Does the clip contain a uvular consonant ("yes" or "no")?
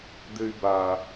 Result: no